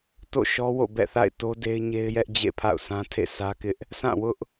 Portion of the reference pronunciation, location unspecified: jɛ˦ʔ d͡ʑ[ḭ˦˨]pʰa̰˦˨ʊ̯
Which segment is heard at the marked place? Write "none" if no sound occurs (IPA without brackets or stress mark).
ḛ˦˨